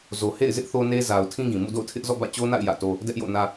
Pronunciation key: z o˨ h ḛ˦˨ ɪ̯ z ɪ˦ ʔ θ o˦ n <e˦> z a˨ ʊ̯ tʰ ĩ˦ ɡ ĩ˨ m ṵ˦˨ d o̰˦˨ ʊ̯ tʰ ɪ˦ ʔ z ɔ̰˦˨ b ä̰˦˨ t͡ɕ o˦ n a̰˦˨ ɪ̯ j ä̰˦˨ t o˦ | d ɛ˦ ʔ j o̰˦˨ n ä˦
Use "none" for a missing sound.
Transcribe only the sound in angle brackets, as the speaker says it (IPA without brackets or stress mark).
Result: e˦